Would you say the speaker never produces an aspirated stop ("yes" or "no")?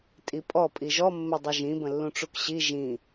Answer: yes